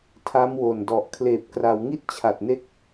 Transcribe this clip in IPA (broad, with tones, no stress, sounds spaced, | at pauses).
tʰ a˦˥ m w o˨˩ n d ɔ˨˩ ʔ kʰ l eː˨˩ p̚ k r a˩˦ w ŋ i˥˩ t̚ t͡ɕʰ a˨˩ t̚ n e˥˩ k̚